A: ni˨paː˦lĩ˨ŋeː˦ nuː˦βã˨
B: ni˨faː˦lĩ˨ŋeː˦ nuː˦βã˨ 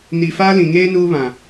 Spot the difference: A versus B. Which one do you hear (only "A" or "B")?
B